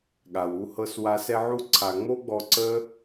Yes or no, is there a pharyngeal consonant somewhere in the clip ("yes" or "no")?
yes